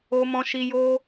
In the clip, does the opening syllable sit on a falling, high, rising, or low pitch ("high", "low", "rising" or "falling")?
high